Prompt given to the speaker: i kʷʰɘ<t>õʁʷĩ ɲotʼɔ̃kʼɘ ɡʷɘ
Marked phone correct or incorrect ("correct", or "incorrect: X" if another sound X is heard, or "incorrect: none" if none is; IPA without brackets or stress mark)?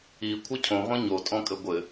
incorrect: cʰ